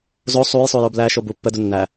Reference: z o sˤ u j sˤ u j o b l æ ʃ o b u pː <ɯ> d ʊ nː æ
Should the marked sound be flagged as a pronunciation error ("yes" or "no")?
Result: yes